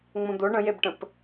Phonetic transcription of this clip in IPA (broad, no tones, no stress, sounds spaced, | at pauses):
ŋ͡m õ d̪ o ɳ ə̃ j e b ʈ ə̃ p